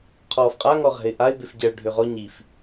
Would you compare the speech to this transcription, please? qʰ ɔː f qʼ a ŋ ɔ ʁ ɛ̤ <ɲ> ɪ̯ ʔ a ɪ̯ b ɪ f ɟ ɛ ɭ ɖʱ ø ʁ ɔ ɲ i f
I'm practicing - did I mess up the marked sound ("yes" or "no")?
yes